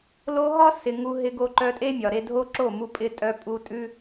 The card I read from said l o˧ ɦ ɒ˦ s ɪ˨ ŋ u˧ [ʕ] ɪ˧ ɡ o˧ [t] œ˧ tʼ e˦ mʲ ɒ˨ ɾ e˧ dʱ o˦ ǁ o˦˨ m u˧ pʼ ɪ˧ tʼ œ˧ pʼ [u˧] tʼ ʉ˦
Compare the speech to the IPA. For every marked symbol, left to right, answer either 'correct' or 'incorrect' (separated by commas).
incorrect, incorrect, correct